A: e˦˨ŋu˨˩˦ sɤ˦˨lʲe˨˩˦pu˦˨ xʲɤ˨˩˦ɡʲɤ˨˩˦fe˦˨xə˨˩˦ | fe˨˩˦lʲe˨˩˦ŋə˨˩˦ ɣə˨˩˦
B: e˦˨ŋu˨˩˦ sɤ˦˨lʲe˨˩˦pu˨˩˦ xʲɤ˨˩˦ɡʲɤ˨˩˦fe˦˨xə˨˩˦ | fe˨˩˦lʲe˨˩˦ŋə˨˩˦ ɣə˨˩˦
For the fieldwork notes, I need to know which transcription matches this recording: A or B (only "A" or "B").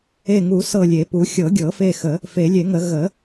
B